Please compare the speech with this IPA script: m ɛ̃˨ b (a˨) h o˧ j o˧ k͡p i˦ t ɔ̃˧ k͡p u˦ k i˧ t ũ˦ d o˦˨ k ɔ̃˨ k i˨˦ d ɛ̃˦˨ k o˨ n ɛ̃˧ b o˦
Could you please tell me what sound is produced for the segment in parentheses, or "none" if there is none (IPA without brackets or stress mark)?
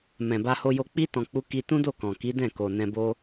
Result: a˧